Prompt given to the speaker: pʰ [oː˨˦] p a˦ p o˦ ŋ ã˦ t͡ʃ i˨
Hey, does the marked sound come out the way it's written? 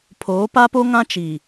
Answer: yes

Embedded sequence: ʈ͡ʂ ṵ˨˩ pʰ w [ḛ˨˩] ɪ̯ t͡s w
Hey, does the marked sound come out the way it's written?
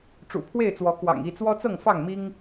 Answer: no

